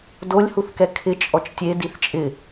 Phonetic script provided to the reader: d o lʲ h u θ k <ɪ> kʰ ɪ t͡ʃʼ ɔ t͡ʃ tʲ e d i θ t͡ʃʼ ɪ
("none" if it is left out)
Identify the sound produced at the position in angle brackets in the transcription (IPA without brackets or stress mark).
ɛ